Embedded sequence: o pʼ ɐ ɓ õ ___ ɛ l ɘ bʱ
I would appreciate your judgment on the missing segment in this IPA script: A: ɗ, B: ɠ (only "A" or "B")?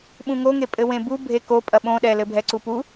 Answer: A